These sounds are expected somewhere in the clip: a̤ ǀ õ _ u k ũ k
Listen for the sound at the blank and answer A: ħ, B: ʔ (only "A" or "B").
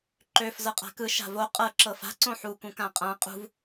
A